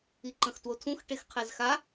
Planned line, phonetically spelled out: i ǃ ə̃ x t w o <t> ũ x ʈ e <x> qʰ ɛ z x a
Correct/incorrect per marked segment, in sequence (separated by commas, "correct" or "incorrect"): incorrect, correct